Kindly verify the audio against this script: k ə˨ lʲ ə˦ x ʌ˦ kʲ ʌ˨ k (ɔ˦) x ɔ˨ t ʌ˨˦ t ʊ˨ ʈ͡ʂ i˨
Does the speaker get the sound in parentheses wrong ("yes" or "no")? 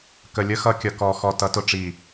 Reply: yes